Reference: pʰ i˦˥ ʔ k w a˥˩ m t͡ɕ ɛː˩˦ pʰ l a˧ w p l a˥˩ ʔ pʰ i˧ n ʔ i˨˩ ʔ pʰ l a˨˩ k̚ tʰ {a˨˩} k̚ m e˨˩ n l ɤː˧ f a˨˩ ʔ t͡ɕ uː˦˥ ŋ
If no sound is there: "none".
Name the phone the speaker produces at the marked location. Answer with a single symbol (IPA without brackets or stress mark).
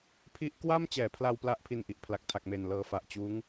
a˨˩